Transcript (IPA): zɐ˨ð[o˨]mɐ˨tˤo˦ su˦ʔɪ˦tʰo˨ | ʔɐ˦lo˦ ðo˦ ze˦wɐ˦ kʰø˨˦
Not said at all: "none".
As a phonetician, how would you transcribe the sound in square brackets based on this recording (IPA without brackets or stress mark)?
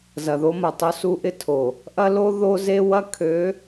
o˦